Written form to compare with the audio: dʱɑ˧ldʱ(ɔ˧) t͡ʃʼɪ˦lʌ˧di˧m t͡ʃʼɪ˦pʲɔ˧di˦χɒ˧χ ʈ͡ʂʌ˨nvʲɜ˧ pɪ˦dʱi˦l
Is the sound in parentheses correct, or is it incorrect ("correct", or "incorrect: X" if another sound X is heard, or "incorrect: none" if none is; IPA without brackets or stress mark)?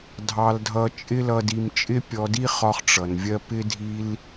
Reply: incorrect: ʌ˧